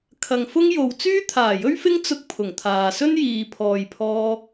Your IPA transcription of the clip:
kʰ ɐ˨ ŋ f ʊ˥ ŋ j o˨ w t͡s yː˥ t̪ʰ aː˨˩ j ɵ˥ ɥ f ɪ˥ ŋ t͡s ʊ˥ k̚ pʰ ʊ˨˩ ŋ t̪ʰ aː˨ s ɵ˥ n j iː˨ pʰ ɔː˨ j pʰ ɔː˧

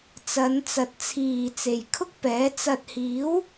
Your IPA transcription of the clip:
t͡s ɐ˨˧ n t͡s ɐ˨˥ t̚ t͡sʰ iː˨ t͡s e˨ j kʰ ʊ˥ k̚ p ɛː˨˥ t͡s ɐ˨ t̚ h iː˨˥ w

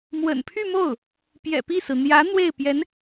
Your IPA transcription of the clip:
m w ə̰˨˩ n pʰ y˥˧ m o˥˩ ʊ̯ | p j ɛ̰˨˩ p i˥˩ s ɹ̩˩ n̪ j ä˧˥ n̪ w e˥˩ ɪ̯ p j ɛ˧˥ n

